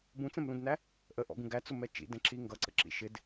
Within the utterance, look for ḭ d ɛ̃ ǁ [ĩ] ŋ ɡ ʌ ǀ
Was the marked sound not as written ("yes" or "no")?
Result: yes